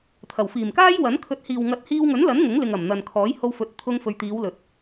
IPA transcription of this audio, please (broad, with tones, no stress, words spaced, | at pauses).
t̪ʰɐ˨˩wfiː˨˩mkaː˥jwɐ˨˥n kʰɵ˨˥t̚hiː˨w ŋɐ˨˥t̚hiː˧wŋɵ˨˥nlɐ˨˥n ŋʊ˨˥ŋlɪ˨ŋ ɐ˨˩mn̪ɐ˨n kʰɔː˨˥j ho˧wfɵ˨t̚ t̪ʰʊ˧ŋfɵ˨ɥt̪iː˨˧wlɵ˨t̚